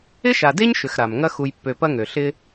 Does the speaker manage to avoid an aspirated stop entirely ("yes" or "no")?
yes